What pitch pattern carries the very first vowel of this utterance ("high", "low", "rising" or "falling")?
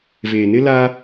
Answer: low